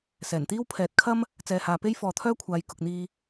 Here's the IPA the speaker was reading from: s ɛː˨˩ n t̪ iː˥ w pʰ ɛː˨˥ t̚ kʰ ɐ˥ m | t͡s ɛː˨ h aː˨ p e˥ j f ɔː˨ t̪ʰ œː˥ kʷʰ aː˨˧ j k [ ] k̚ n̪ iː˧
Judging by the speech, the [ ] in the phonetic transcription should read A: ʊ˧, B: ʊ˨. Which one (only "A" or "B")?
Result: B